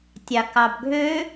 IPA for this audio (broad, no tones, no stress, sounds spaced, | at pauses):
tʲ ɑ k ɑ b ɡʱ ø